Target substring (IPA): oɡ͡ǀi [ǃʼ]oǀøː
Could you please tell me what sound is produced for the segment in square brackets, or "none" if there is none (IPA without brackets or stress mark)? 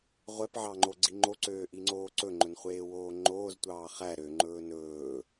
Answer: ŋ͡ǃ